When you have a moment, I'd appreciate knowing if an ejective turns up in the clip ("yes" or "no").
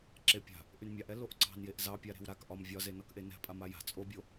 yes